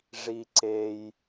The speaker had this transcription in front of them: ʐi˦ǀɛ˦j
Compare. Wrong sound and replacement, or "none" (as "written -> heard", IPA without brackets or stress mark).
ɛ˦ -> e˦